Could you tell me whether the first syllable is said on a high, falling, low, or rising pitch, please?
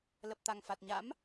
low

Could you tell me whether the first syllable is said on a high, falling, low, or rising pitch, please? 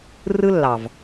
high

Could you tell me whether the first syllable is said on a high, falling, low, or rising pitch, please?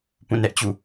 falling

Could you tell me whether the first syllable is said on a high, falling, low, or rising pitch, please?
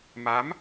rising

